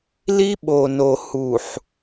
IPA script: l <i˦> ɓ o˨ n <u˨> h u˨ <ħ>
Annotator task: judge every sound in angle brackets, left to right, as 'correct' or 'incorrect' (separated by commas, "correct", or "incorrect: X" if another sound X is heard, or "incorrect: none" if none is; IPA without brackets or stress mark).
correct, incorrect: o˨, correct